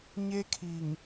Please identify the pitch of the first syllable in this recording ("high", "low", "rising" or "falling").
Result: high